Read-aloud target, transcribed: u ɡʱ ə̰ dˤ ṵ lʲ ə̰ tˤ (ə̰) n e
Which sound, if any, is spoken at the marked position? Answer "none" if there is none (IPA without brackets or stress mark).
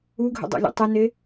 ə